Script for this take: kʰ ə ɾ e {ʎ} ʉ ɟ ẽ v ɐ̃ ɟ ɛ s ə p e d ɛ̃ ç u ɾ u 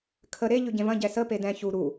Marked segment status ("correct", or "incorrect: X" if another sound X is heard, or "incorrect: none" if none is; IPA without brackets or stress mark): correct